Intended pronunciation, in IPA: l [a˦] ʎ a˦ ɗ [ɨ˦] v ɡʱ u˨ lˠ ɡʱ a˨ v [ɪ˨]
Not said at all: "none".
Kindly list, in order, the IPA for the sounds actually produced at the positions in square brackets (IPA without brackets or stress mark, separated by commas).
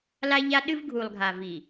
a˦, ɨ˦, i˨